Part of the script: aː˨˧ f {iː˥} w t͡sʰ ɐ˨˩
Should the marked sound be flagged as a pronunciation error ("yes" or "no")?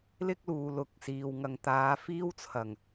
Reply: no